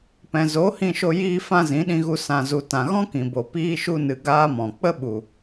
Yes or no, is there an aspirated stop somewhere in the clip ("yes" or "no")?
no